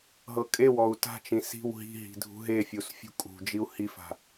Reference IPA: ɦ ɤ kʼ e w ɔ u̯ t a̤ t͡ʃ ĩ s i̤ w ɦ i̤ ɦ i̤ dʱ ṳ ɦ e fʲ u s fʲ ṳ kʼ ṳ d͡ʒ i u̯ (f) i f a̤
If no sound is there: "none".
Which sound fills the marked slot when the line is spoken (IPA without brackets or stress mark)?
h